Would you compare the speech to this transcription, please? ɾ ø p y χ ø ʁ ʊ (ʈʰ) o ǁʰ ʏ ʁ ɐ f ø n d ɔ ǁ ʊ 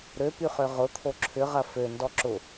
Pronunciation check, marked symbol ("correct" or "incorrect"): incorrect